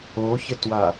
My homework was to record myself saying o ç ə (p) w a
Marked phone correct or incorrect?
incorrect